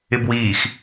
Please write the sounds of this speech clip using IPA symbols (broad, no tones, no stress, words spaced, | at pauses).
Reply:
ɪbwiːx